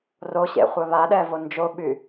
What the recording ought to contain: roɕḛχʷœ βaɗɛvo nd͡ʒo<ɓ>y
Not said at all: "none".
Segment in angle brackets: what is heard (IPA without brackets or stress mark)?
ɓ